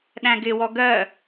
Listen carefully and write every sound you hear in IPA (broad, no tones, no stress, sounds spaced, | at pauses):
ɗ æ̃ ɡ ɪ w ɔ ɡ ɜ